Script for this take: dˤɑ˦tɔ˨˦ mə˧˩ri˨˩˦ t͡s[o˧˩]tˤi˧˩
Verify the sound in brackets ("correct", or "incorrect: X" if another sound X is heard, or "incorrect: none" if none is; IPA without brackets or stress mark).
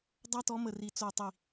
correct